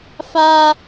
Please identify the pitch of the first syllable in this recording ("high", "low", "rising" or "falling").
high